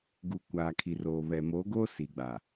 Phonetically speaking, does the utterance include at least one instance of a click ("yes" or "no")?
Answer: no